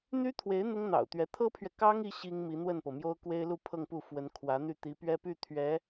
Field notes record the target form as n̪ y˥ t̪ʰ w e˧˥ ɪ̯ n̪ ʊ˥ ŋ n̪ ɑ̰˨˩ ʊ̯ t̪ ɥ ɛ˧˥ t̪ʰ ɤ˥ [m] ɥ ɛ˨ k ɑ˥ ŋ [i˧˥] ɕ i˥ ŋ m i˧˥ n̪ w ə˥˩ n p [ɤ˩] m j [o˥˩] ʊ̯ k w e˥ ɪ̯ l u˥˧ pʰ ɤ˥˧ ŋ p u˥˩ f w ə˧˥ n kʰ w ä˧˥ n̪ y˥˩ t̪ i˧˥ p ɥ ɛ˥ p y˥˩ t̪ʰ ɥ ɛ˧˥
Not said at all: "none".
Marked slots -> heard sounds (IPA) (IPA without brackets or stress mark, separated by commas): pʰ, i˧˥, ɤ˩, o˥